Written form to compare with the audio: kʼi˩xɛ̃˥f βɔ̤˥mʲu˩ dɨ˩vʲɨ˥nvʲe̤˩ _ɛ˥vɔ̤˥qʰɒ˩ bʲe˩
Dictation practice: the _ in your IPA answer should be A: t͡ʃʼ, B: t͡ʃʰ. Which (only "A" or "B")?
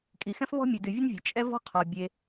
A